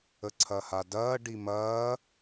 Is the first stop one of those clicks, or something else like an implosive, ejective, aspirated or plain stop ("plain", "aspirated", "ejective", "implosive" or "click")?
click